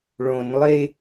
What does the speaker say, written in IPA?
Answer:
ɭõnlˠe

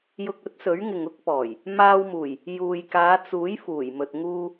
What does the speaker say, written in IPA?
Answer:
jʊ˧k̚ɵ˨˥t̚sɵ˨˥ɥŋɪ˨ŋ ʊ˥k̚pɔː˨˩j | maː˧wmuː˨˩j | juː˨jkaː˨˧t͡suː˨˥j fuː˨˩jmɵ˨t̚ ŋuː˧

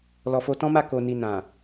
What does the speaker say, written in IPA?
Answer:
lɔ˨fo˧tɔ̃˦ma˦˨ ko˨ni˨ nã˨

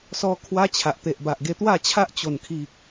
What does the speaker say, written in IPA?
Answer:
sɔ˧ kʰwa˦t͡ɕʰa˨ʔ t̪e˨ʔba˨ʔɡe˧ t̪wa˥˧t͡ɕʰa˦ʔ t͡ɕo˨˩nkʰi˨k̚

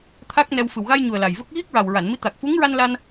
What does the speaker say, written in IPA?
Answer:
t̪ʰa˦˥k̚nɛ˧w fɨ˨˩wɣa˧jɲu˨˩ə̯ la˨˩jvə˦˥k̚ ɣi˦˥k̚ɹa˨˩wɹa˨˩˨nmi˧˥ t̪a˨˩k̚fu˧˥ŋɹa˧n la˧n

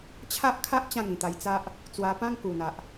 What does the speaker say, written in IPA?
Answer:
t͡ɕʰa˦ʔkʰa˦ʔ t͡ɕã˥˧ŋĩ˨˩t̪a˧jt͡sa˦ʔ | t͡swa˧pã˦ŋ ku˨˩n̪a˨ʔ

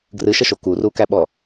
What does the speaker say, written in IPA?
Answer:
ɡrɨʃəʃo kurukæɓɔ

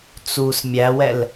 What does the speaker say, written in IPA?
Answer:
t͡sus mʲæwɛl

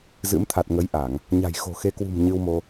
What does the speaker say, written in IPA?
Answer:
zɨ̰˧˥mt̪ʰa˨˩t̚ ŋə˨˦jʔa˧˩˨ŋ | ɲa̤˨˩jxo̤˨˩ xe˨˦kwṳ˨˩m ɲɨ˧wmo˧

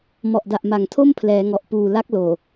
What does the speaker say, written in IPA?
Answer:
mɔ˨˩ʔda˨˩ʔ ma˨˩ŋtʰo˥˩mpʰlɛː˩˦ŋɔ˨˩ʔ puː˨˩la˦˥k̚loː˨˩

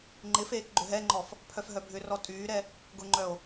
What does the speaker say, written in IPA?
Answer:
ŋ͡ǃɪfeːk ɡ͡ǃʏɦɛŋ͡ǃɔf | pʰœfɦœbʱʏrɔ tʼyːɾɛ | ɡʊŋ͡ǃœo̯

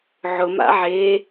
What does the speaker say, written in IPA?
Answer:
ʕʊma̰ ʕe

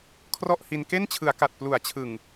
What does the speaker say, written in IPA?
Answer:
kʰrɔ˥˩ʔhi˧n ke˥˩nt͡ɕʰɯ˩˦a̯ka˨˩t̚ plu˩˦a̯t͡ɕʰɯ˨˩ŋ

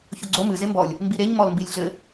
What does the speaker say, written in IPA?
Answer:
çoɡ͡ǀo mɨ zembɔlʲ | mbiɾeɲ mɔlmbilʲɮɘ

